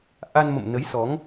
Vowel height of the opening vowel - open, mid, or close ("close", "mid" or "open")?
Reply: open